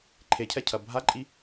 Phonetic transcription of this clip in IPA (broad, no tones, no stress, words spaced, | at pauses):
ǃʰecʰɛcʰɐ bʱaǃʼi